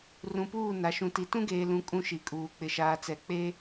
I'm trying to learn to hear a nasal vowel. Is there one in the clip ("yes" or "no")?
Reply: yes